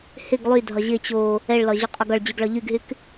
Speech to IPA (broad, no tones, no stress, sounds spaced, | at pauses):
h ɪ ɡ lˠ y dʱ ɒ ʑ ɪ t͡ɕ o | ɛ ɭ l ɒ ʑ ʏ qʼ ɒ ɡ ɒ ɭ d͡ʑ y ɡ ɭ ɒ ʎ y ɡ ɦ y k